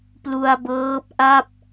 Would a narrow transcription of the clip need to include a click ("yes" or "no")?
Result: no